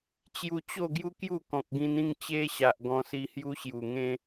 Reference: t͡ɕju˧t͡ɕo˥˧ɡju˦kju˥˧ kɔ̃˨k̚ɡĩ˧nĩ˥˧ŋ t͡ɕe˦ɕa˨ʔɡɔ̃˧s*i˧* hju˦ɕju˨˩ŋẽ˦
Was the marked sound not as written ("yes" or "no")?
no